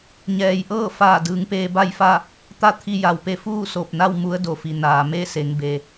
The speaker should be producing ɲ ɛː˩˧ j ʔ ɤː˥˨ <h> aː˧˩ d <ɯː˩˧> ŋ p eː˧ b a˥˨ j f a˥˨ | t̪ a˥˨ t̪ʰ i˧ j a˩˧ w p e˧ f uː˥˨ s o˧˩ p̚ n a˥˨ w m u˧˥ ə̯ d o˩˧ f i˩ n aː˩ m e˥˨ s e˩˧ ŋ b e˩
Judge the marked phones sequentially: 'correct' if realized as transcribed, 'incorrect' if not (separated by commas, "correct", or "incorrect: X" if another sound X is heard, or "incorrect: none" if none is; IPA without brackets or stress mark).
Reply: incorrect: f, correct